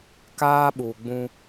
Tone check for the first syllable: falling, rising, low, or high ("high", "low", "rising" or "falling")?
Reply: high